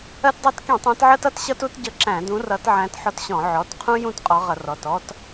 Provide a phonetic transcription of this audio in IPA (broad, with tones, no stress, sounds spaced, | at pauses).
ɜ˦ t dˤ æ˦ t k ĩ˧˩˧ tˤ æ̃˨˦ t ʕ ɜ˦ t ʌ˦ t ɕ ʌ˦ t u˦ t ɟ ʌ˦ ǁ æ̃˧˩˧ d ũ˨˦ r ʌ˨˦ t ʕ æ̃˨˦ t ħ ɔ˦ t ɕ ɔ̃˧˩˧ ʕ ɔ˩˧˩ t qʰ ũ˦ j ũ˥˨ t qʼ ɔ˨˦ ʁ ʌ˧˩˧ r ɔ˩˧˩ t ɔ˦ t